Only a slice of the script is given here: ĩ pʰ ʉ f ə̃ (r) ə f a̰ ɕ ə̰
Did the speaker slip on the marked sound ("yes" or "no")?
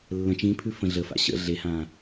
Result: yes